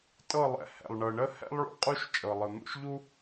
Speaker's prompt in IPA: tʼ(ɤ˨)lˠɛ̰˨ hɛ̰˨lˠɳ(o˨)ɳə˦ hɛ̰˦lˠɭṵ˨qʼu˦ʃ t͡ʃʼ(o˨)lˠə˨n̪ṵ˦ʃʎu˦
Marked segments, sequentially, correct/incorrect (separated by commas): incorrect, incorrect, incorrect